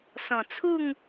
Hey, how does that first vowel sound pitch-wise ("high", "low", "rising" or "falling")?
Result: low